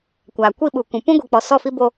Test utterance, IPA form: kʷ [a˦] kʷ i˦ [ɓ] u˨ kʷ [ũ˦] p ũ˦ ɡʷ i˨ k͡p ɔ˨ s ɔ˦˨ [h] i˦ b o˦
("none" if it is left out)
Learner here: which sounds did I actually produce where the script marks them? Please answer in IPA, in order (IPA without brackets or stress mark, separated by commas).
a˨, ɓ, ũ˨, f